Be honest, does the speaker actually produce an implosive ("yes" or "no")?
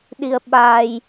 yes